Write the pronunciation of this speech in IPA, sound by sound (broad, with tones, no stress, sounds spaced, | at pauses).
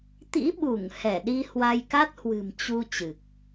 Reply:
t̪ ḭ˧˥ ɓ u˧˩ ŋ h ɛ˧˩ ɗ i˧ h w a˧ j k a˦˥ t̚ h w ɨ̤˨˩ m t͡ɕ u˧ t͡ɕ ɨ˨˩ k̚